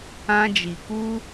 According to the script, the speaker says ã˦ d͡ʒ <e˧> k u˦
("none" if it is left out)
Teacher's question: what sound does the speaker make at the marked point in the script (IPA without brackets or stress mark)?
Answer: i˧